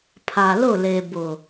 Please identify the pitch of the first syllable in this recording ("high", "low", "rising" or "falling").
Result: low